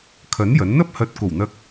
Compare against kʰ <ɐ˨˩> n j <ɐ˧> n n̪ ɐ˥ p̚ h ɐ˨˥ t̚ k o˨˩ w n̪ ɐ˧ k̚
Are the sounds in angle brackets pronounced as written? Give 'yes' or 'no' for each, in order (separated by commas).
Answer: no, no